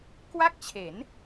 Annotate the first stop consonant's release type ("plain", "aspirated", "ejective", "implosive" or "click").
plain